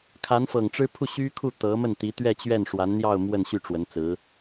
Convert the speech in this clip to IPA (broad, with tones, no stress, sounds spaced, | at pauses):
kʰ a˧˥ n f ɤ˨˩ ŋ ʈ͡ʂ ɻ̩˥ pʰ u˥˩ ɕ y˥ kʰ u˥˩ t̪ ɤ˧˥ m ə˥˩ n t̪ i˧˥ t̪ ɥ ɛ˥˧ t͡ɕ ɥ ɛ˥˩ n ʂ w a˧˥ n n̪ j ɑ˥˧ ʊ̯ m w ə˥˧ n ɕ y˥˩ ʈ͡ʂ w ə˧˥ n t͡s ɹ̩˧˥